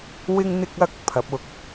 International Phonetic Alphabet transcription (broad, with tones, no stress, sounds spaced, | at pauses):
w ɪ˥ ŋ n̪ ɪ˥ k̚ ɐ˥ k̚ pʰ ɐ˨˥ p̚ ʊ˧ k̚